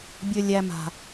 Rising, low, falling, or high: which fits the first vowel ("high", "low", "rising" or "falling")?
low